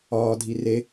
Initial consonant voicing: voiced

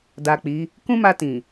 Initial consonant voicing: voiced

